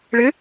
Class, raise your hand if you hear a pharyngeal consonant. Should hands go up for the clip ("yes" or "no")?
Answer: no